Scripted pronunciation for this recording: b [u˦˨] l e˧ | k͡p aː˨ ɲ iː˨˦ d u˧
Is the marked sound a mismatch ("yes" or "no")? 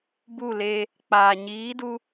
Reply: no